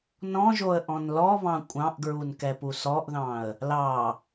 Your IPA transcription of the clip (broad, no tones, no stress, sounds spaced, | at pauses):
n ɔ̃ ʒ o ə̯ ʔ ɔ̃ n l ɔ β ɑ̃ kʷʼ ɑ̃ ʔ ɡ ɹ u n k ɛ p u s ɔ ʔ ð ɑ̃ ə̯ | l ɑ